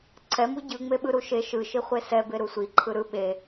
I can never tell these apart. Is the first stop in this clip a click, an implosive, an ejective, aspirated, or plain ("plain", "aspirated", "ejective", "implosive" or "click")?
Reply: click